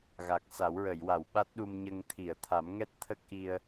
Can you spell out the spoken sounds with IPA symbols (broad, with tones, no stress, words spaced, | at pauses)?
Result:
ɣa˨˩k̚sa˨˩˦w ɹə˨˩˨jwa˨˩˨w ɓa˦˥t̚ɗu˧mɲə˧ŋ t̪ʰi˨˩˨ə̯t̪ʰa˨˩˦mŋɛ˦˥t̚t̪ʰə˦˥k̚ ʔi˧ə̯